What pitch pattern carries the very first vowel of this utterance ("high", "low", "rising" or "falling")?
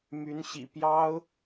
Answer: rising